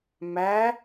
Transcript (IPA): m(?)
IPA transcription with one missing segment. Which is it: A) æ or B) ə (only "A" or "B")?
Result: A